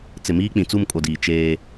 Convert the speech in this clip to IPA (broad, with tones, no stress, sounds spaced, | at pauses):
t͡s ɪ˨ m iː˦ k͡p ĩ˨ t͡s u˦˨ m kʼ o˨ d iː˨ t͡ʃ eː˦